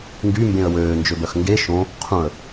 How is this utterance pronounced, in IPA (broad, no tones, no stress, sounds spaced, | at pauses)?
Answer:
ŋ ɡ y m b ẽ ə̯ w øː n d͡ʒ ø b œ x ŋ ɡ e ʃ õ | qʰ ũ ə̯